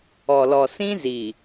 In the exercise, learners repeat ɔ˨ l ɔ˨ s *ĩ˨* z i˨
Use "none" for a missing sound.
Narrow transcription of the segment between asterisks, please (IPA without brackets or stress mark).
ĩ˦